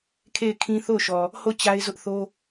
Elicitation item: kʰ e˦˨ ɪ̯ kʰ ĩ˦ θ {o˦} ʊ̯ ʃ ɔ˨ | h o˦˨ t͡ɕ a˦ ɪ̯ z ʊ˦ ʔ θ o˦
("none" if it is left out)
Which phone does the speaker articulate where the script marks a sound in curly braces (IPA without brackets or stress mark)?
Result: o˦˨